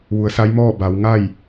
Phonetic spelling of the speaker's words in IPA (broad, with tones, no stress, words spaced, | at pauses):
ʋu˩˧ə̯sa˧˥jmɔː˥˨ ba˩˧wŋa˥˨j